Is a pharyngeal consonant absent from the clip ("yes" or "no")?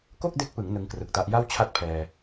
yes